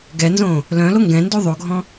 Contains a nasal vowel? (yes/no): yes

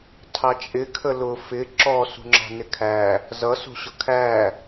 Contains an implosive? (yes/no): no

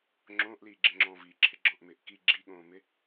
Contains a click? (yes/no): yes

